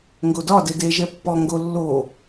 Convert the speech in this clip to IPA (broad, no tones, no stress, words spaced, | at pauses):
ŋɡodɒde deʒɛ pːɔ ŋɡo lːo